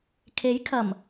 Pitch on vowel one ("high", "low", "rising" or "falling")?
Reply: rising